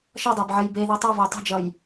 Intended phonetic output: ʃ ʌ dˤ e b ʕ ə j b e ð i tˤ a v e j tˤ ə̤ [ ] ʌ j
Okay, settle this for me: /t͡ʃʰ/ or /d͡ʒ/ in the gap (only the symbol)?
d͡ʒ